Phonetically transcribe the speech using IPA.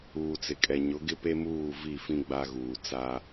uː˨ t͡s ɪ˨ kʼ ɛ˨ ɲ ʊ˨˦ ɡ ɪ˦ p e˦ m uː˦˨ v i˦˨ f ĩ˦ ɡ͡b a˦ ɣ uː˨ t͡s a˦

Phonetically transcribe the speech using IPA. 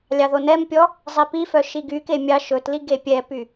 lʲ ɑ ð o n ɛ m pʲ ɔ | zˤ i p i f œ ʃ i ɡ y k e mʲ ɑ ʃ ɵ t l i ɡ e pʲ ɛ p y

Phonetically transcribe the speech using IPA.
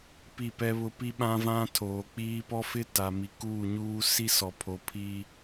p i˦˨ p ɛ˦ β ʊ˦ p i˦ ɓ ã˦ v ã˦ tʰ oː˨ k͡p iː˦ p ɔ˦ f ɪ˦ t a˨ m i˨ k uː˦˨ ɲ uː˦ s i˦ s ɔ˨ pʰ o˨˦ pʰ iː˦

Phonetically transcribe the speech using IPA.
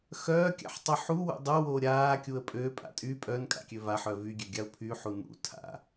x œː kʲ a̰ ħ tˤ œ ħ u w ṵ dˤ o w o ɾʲ aː kʲ u ə̯ pʼ ø pʼ a̰ tʼ y pʼ œ n kʼ a̰ kʲ ø v a ħ œ v y ɡʲ ø ɡʲ a ʊ̯ pʰ y ħ u n ṵ tʰ a̰

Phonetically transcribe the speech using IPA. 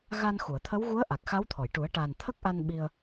ɣ a˧ n x u˨˩˨ ə̯ t̪ʰ ə˧˥ w ɣ u˧˥ ə̯ ʔ a˨˩ k̚ x a˧˥ w t̪ʰ ɔ˨˩˨ j ʈ u˨˩˦ ə̯ ʈ a˨˩ n t̪ʰ ə˦˥ k̚ ʔ a˧ n ɓ i˧ ə̯

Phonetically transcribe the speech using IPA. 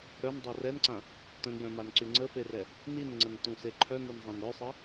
ɾ œ n dˤ ɛ r ɛ n ǀ ã | t ə̃ n j œ̃ m a n ǀ y ŋ͡ǀ ə f e r ɛ | n i n ŋ͡ǀ ə n t ũ s e ǃʰ œ n e n zˤ ã n ɾ œ sˤ e

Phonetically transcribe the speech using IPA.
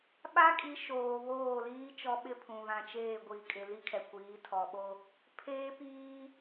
ɓ a˦ kʼ i˨˦ ʃ oː˨ β oː˦˨ l iː˦ t͡ʃ ɔ˦ ɓ ɪ˦ pʰ ũ˨ β ã˨ t͡ʃ eː˦˨ ɡʷ i˨ kʼ ɪ˨ l i˦ kʰ ɛ˨ kʷ iː˨˦ tʰ ɔ˨ ɓ o˦ | pʰ eː˦ p iː˦

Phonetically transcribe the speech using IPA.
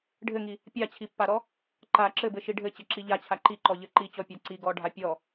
ɖʱ ɘ ŋ i | pʲ a t͡ɕʰ i pː a ɾ ɔ | ǃ a ǁ ɘ b ɘ ʃ i ɖʱ ɘ t͡ɕ ɘ ǁ i ʎ a t͡ɕʰ a ǃ i ǃ ɔ ʎ ɘ ǃ i t͡ɕ ɔ pʲ a ǀ i ɡ ɔ ɖʱ a pʲ ɔ

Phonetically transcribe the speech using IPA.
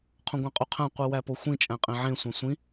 qʰ õ ɡʷ æ̃ qʼ u qʰ æ̃ qʷ i w æ p o xʷ ĩ t͡ʃʼ æ̃ qʼ ẽ ʕ ẽ sʷ æ̃ sʷ ĩ

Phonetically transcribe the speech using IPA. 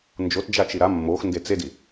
n d͡ʒ o t d͡ʒ a t͡ʃ i ɾ a mː o x n d e t͡s e d i

